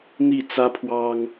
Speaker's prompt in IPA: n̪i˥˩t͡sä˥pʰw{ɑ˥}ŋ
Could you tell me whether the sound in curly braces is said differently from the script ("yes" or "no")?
no